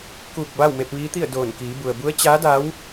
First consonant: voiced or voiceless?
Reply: voiceless